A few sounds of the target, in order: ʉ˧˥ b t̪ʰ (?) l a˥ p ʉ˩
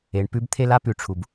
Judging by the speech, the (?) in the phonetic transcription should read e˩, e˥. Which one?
e˥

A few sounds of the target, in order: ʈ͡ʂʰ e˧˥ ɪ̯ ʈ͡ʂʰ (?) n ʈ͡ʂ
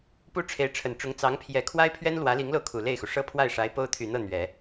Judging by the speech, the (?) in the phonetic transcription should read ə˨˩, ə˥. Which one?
ə˨˩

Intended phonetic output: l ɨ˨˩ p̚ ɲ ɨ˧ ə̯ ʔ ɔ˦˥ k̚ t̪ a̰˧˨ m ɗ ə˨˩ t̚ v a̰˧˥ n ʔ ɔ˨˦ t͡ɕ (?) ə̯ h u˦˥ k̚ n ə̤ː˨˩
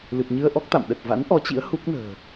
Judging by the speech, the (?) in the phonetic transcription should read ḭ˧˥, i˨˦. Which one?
ḭ˧˥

